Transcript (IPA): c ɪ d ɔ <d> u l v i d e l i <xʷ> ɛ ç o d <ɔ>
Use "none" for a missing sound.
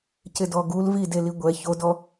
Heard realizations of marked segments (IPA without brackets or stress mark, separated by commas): ɡ, ɡʷ, ɔ